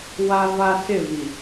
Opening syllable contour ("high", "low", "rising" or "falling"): high